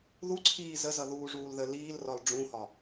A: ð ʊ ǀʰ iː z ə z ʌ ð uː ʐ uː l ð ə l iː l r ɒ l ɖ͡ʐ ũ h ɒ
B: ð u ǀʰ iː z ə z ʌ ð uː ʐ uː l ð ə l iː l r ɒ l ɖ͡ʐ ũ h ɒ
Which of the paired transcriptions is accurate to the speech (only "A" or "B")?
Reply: B